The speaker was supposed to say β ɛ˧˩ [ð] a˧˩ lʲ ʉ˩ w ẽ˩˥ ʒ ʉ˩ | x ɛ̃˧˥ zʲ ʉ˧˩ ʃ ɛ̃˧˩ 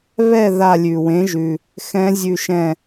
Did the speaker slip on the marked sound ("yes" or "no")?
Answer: no